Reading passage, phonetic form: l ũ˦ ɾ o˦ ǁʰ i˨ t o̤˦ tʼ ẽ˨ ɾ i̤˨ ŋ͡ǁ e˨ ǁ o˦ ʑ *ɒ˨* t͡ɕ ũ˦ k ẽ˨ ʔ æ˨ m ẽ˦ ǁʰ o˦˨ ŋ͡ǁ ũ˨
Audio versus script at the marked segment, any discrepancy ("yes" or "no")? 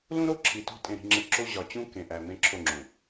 no